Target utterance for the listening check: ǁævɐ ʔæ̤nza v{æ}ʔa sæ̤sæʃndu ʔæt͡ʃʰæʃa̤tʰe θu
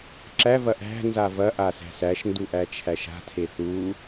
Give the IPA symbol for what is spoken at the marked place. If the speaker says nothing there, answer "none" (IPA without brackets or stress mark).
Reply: ɐ